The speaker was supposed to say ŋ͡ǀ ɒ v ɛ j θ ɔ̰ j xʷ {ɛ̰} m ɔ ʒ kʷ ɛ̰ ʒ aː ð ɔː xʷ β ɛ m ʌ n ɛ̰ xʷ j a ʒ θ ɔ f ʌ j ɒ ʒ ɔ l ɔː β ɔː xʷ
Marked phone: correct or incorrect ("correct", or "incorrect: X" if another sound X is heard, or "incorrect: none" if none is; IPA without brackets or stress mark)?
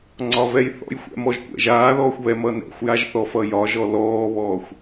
correct